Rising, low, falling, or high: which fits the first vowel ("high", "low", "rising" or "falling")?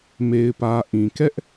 low